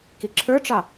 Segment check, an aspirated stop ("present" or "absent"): present